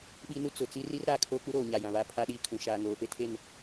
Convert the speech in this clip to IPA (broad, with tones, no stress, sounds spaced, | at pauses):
ɓ i˦ n u˦ t͡s ʊ˨ t͡s i˦ r i˦ r ɾ aː˨ kʰ oː˦ k͡p u˦ ɾ oː˨ ɲ a˨ j ã˨ β a˦ pʰ a˦ ɗ iː˦ kʰ ũ˨ ʃ aː˨ ŋ oː˨ p e˦ tʰ e˦˨ n